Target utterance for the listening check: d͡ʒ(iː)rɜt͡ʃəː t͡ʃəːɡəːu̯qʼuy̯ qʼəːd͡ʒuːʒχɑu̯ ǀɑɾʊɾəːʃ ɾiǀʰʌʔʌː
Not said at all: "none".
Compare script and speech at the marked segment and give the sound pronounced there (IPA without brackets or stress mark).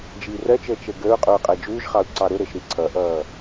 iː